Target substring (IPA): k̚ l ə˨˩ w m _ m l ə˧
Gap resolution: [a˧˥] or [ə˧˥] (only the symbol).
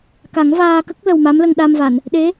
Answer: a˧˥